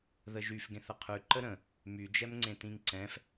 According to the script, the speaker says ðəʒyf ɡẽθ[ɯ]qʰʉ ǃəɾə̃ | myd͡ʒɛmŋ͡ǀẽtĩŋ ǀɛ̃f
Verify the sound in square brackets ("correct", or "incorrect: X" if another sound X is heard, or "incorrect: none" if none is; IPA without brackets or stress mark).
incorrect: ə